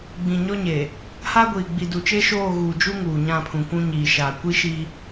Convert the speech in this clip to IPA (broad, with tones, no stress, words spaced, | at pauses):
ɡ͡bĩ˨ɲɔ˦ɲe˨ | ha˦ɡʷiː˨ ɡ͡bi˨ du˨t͡ʃe˦ʃoː˦˨ɣuː˨ d͡ʒu˦ ŋuː˨ɲã˦˨pʰũ˨kʷũ˦ ɲiː˨ ʃaː˨ kʷi˦ʃi˦